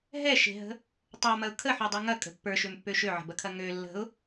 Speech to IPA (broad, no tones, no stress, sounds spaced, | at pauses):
ɦ ɛ ʃ e̤ ɦ ə̤ | tˤ ə˞ m ɐ ʊ̯ kʰ ə ħ u dˤ u ŋ ɐ kʼ ə̤ pː ə˞ ʃ ø m pː ø ʃ ø ʕ ə̤ b ɐ kʰ ɐ ŋ ø lː ə̤ ʊ̯